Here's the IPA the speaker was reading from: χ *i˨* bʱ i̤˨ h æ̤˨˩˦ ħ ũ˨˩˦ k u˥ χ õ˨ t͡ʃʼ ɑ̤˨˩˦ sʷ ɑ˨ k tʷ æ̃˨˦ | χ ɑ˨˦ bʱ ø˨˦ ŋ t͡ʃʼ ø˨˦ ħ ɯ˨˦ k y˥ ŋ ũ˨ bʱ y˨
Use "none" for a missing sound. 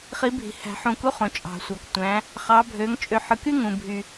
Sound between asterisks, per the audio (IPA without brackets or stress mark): i˨˦